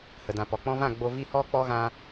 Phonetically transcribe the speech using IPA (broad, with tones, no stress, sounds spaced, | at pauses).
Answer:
h ə˨ d ã˨ p ɔ˨ k͡p ɔ̃˧ v ã˦˨ ɡ͡b o˧ v i˦˨ h ɔ˦ k͡p ɔ˦ ɣ ã˦